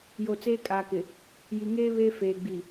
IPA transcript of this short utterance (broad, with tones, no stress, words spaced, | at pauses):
jo˨t͡seː˦kʼaː˨kɪ˨ | ji˨ŋeː˦ βe˦feː˨ ɡ͡bi˨